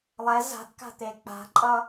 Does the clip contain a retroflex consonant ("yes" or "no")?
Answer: no